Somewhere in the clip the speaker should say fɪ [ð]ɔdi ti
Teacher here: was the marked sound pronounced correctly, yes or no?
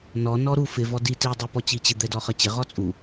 no